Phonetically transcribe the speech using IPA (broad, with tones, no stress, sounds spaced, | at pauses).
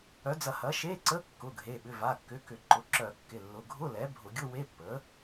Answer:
œ˩˥ d͡z ɐ˧˩˧ h ɐ˩˥ ʃ e˧˥˧ ǀ ə˧˥˧ kː ʊ˩˧˩ ɡʱ e˩˧˩ ɓ ʏ˩˧˩ v a˩˧˩ kː ʏ˩˧˩ k ʏ˧˩˧ ǃ ʊ˩˧˩ ǁ œ˧˩˧ kː ɪ˩˧˩ lː ʊ˩˧˩ ɡʱ ʊ˧˥˧ l ɛ˩˥ bʱ ʊ˧˩˧ ɡʲ ʊ˧˥˧ w e˧˥˧ pː ə˩˥